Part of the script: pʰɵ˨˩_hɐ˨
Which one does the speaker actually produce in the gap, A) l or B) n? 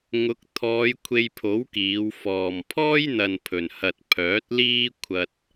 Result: B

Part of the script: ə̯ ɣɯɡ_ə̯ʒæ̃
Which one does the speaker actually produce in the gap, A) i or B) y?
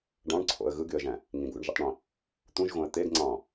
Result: B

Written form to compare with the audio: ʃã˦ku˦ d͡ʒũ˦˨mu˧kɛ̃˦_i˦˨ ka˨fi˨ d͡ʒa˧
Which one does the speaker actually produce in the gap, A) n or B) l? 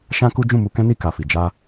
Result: A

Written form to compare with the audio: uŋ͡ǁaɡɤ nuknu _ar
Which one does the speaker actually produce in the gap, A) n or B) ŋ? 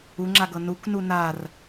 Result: A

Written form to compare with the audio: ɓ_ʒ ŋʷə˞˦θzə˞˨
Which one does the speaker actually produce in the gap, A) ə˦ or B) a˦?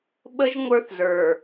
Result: A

